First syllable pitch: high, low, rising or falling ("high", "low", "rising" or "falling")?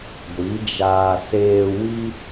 rising